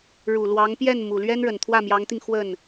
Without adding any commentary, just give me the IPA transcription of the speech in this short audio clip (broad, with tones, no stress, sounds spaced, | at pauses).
ɻ u˨˩ l w ɑ˧˥ ŋ p j ɛ˥˩ n m u˨˩ l ɥ ɛ˥ n ɻ ə˨˩ n t̪ʰ w ä˥˩ m j ɑ˧˥ ŋ t̪ i˧ ŋ x w ə˥˩ n